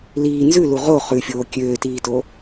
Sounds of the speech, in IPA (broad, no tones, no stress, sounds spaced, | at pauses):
l iː n z ʉ l u ʁ o χ ʉ fʲ oː kʲ øː t iː t o